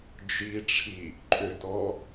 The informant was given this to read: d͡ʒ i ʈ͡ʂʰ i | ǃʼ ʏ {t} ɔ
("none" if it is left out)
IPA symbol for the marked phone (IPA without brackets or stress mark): t